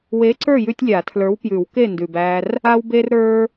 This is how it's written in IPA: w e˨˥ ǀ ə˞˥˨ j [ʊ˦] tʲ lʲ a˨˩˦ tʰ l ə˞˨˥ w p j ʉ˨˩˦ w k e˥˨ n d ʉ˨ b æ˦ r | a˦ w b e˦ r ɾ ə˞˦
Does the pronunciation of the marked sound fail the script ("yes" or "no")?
yes